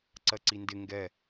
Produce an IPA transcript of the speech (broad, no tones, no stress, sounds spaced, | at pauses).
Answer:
ǀ ɜ ǀ i n d ɪ ŋ ɡ ɛ